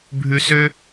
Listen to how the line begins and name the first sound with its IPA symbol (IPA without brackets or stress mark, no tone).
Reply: bʱ